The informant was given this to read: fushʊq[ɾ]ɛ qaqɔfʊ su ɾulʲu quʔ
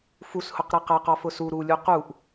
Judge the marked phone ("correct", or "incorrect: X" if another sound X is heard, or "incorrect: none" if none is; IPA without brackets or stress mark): correct